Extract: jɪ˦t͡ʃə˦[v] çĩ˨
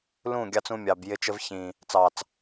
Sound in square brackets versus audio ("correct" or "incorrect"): correct